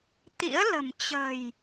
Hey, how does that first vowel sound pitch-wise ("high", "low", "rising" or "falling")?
rising